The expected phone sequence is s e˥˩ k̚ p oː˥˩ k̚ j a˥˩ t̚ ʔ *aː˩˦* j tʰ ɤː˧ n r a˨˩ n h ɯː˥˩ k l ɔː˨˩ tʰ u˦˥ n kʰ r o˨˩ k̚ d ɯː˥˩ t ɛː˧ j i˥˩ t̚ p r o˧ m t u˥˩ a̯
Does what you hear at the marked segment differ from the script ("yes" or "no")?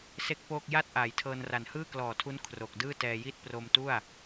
no